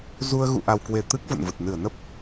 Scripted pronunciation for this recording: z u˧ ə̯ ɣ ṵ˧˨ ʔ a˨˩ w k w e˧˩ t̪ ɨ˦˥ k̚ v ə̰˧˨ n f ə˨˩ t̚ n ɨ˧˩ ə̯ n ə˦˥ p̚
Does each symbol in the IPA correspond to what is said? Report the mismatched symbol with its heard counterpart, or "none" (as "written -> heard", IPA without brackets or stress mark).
f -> v